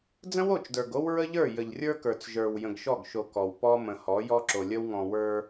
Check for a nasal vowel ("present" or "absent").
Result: present